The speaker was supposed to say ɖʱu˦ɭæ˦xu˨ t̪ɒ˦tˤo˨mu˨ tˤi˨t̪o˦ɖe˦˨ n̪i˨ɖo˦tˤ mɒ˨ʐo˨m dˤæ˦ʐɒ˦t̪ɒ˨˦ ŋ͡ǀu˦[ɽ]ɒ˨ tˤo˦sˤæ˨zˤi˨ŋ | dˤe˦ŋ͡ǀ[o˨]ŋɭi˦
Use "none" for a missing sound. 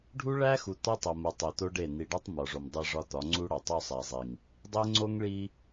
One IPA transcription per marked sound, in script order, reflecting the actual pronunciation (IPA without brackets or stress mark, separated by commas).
ɽ, o˦